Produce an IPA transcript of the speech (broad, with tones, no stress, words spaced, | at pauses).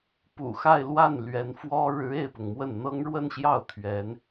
pṵ˨˩xa˥˧ɪ̯lwa˥˩n lɥɛ˧˥nfwɔ˥ ɻɻ̩˧˥e˥˩ɪ̯pʊ˩ŋmwə˥˩n n̪ɤ˥ŋɻwə˥˧nɕjɑ˥˩ʊ̯ t̪ʰɥɛ˧˥n